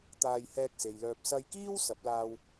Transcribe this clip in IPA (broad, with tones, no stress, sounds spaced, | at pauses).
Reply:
t̪ aː˧ j h ɛː˧ k̚ s e˨ j l œː˧ p̚ s ɐ˧ j k iː˥ w s ɐ˨˥ p̚ l aː˧ w